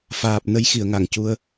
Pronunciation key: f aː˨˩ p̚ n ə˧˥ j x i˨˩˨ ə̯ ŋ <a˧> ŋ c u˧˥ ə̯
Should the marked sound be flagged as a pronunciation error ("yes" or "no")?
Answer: yes